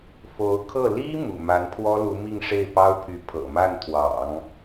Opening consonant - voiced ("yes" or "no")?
no